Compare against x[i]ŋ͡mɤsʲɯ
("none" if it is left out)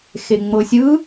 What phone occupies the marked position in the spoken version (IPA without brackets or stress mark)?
e